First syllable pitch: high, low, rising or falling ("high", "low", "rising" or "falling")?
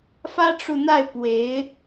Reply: high